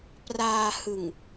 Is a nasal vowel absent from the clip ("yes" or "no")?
yes